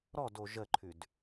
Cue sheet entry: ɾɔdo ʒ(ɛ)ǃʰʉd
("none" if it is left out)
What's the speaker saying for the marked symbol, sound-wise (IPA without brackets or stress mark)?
ə